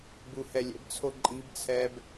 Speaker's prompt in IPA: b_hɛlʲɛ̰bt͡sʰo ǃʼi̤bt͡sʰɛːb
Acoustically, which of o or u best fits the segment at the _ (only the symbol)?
u